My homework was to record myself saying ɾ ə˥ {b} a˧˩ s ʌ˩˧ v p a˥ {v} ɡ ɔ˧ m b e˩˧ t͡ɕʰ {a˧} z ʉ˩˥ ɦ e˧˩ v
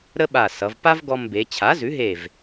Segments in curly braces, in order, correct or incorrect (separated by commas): incorrect, correct, incorrect